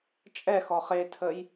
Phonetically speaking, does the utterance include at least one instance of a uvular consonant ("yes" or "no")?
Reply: yes